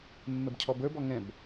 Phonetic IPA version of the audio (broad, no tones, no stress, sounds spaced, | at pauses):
mː ɛ b cʰ ɔ b ə˞ b ɔ ŋ ɛ̃ b